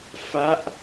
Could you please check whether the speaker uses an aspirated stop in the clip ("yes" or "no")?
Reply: no